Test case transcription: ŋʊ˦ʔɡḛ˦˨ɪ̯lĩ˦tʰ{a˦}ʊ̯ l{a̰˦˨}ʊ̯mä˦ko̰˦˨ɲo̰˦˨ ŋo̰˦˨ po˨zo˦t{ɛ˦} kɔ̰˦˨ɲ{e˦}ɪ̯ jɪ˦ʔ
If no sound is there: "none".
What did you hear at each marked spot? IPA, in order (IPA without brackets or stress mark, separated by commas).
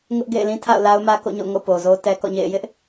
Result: a̰˦˨, a˦, ɛ˦, ḛ˦˨